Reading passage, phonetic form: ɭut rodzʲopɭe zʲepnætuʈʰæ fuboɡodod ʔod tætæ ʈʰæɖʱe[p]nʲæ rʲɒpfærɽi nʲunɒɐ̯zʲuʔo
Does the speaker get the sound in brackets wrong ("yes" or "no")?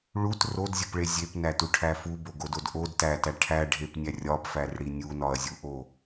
no